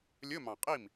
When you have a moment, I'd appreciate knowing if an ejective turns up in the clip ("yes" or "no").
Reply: yes